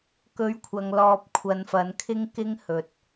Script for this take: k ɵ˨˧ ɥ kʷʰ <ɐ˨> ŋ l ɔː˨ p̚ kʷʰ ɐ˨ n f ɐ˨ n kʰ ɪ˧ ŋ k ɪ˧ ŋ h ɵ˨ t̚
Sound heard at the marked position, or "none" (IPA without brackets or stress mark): ɐ˨